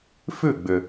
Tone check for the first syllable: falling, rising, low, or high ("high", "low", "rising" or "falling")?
falling